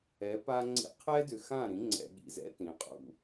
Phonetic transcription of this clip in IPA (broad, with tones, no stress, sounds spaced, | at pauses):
ɛ˨˦ p a˦ ŋ͡ǀ ḭ˦ qʰ ɛ˦ d ʏ˨ x ã˦˨ ɾ ĩ˨˦ ŋ͡ǀ ɛ̰˨ ɠ ḭ˨ z ɛ̰˦ t ĩ˨ qʼ ṵ˦